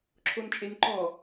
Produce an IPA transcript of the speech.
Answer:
ǁʰ o n t͡ʃʼ e n ǃ ɔ

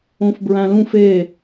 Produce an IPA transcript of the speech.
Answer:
õ f b ɹ æ̃ l ũ f e

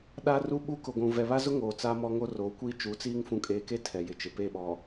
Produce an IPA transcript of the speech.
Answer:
ɗ a˦ r u˦ ɓ u˦ k ʊ˨ ɡʷ ũ˨ v ɛ˨ β a˦ z ʊ˦ ŋ oː˨ t͡s a˦ m ɔ˦ ŋ o˦ r oː˨˦ kʷ iː˦ t͡ʃ u˨˦ t͡s iː˦ ŋ f ũ˨ kʼ eː˨ k e˦ tʰ ɛ˨ j ɪ˨ t͡ʃ ɪ˨ p e˦˨ ɓ ɔ˨

